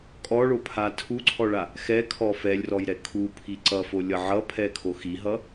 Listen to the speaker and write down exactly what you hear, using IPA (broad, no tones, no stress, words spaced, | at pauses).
kʼɔɭopʰa tʰuǀʰɔɭa | xɛkʰɔ fɛlʲrɔjɾɛ kʰupʰi ǀʌfolʲʌ ʕʌpʰɛkʰo xiɦʌ